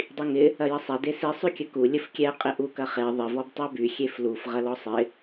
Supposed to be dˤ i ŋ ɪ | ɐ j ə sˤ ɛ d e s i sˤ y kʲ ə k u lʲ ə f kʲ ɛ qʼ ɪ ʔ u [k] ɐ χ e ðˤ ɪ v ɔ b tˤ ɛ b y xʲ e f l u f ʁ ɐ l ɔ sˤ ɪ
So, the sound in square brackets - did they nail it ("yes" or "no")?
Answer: yes